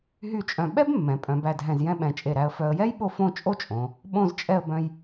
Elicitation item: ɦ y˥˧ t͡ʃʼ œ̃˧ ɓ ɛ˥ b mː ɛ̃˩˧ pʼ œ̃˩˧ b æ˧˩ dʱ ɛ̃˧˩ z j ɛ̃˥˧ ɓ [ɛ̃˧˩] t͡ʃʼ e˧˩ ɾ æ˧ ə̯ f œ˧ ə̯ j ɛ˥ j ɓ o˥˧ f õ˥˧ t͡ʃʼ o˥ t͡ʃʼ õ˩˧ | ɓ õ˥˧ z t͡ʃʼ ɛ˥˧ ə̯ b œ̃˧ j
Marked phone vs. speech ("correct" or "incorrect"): correct